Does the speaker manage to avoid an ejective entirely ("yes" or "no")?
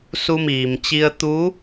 yes